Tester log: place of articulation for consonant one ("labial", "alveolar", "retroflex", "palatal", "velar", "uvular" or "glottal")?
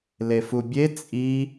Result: alveolar